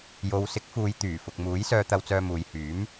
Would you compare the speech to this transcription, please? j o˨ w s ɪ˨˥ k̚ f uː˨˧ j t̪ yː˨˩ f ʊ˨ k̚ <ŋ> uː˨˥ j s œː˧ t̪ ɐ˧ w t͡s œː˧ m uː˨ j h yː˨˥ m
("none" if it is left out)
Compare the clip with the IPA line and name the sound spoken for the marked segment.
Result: m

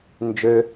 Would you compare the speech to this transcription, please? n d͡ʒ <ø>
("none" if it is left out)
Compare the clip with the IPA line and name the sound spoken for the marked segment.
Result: ø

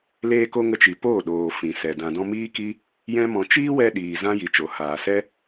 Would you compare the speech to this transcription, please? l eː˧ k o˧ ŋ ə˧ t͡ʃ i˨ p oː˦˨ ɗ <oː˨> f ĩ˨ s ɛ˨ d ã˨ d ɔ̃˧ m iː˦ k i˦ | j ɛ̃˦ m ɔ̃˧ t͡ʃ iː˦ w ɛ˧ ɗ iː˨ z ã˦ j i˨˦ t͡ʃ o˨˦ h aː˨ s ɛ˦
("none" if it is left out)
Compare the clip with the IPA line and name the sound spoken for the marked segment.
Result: oː˨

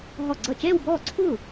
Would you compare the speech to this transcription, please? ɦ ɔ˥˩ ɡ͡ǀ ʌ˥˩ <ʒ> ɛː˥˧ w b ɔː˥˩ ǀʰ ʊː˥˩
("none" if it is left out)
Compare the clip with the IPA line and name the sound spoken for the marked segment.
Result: t͡ʃ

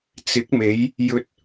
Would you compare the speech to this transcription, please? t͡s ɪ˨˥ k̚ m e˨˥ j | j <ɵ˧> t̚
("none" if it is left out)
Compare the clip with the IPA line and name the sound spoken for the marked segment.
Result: ɵ˧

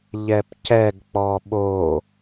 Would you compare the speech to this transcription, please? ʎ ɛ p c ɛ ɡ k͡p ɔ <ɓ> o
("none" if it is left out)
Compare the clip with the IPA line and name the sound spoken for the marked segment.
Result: ɓ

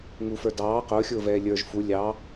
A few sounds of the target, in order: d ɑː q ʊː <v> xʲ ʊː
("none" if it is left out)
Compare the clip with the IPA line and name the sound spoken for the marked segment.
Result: none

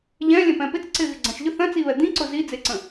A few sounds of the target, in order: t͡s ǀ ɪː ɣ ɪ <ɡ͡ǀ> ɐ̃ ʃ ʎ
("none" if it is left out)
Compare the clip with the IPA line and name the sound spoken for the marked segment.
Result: ɡ͡ǀ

